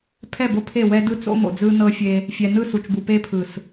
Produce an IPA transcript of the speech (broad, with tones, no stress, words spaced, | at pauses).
pʰɛ˦˨bo˦pʰe˦˨ wɛ˦dɯ˦ t͡so̰˦mo̰˨ d͡zɯ˦nɤ˦fʲe˦ | fʲɛ˨nɯ˦˨ su˨t͡ʃbu˨ pe˦pʰɯ˨s